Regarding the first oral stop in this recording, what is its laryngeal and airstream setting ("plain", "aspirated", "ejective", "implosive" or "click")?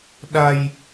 implosive